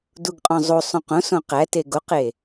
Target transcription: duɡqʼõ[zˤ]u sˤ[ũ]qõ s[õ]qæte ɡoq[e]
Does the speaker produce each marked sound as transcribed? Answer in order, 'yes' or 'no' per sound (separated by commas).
yes, yes, yes, yes